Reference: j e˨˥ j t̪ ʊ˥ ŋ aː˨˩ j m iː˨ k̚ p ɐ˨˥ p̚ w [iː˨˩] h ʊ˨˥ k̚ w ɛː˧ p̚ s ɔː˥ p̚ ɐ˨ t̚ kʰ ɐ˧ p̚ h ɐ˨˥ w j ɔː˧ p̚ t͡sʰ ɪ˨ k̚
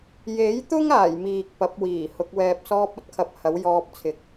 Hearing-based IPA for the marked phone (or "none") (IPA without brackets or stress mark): iː˨˩